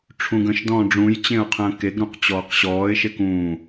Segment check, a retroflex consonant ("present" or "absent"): present